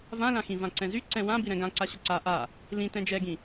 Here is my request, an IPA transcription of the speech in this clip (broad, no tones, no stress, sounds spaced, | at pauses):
v ã l ã x ĩ v ã ǀ ɛ̃ z y ǀ ɛ̃ w ã b i ɾ ɛ̃ ɡ ã ǀ a ɕ ʊ ǀ a ʔ a | l ĩ t ɛ̃ d͡ʒ ɛ ɡ ĩ